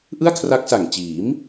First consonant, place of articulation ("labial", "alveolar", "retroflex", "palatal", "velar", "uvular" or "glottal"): glottal